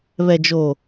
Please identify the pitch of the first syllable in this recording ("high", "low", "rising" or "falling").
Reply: low